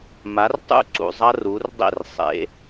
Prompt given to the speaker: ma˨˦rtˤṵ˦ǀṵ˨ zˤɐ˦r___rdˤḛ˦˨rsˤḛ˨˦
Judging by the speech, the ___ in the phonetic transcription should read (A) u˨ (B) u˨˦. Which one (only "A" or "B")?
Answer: B